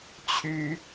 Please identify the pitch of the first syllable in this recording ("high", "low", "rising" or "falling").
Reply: high